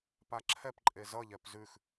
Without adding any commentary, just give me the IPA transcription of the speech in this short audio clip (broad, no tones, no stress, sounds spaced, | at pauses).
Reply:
p a ǁʰ ɛ p ǃʼ e z ʌ ʎ ɛ p z ʉ x